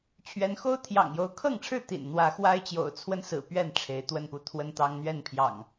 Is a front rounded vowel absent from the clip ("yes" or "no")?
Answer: yes